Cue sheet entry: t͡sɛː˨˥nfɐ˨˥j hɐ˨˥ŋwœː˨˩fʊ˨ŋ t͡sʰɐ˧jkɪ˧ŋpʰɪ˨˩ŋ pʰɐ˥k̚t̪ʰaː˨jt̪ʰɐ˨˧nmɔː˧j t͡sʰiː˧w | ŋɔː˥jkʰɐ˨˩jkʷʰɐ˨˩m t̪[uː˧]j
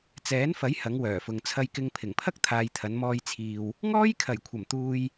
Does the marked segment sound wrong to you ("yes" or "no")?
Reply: no